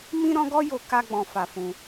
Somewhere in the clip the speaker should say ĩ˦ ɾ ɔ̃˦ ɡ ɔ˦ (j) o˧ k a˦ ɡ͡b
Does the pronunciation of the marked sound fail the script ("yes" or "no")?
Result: no